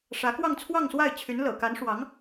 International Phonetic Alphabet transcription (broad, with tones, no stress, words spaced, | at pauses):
ʂä˧˥kwɑ˥˧ŋ t͡sʰwɑ˥˧ŋswa˥˩ɪ̯t͡ɕʰy˧˥n lɤ̰˨˩ka˧˥nʂwɑ˧˥ŋ